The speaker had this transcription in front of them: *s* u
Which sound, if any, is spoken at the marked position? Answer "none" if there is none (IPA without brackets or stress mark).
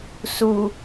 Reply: s